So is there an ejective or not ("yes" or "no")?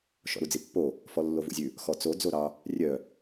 no